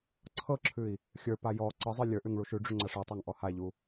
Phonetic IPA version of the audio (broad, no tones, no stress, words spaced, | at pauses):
ǀʰɤǁʰʉi̯ | xʲə˞pa jɔ ǀɤzˤə˞ lʲə˞ʔʉŋ ɭuʃʉɖ͡ʐʉ ŋ͡ǀaʂɤtˤaŋ ʔɔhaʎu